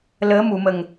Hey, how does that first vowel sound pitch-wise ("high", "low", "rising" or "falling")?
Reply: rising